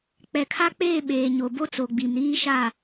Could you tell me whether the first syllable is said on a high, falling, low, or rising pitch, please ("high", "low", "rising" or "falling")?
low